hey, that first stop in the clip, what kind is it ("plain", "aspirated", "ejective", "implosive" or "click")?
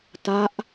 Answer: plain